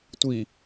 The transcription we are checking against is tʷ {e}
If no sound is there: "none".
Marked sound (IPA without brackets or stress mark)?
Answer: i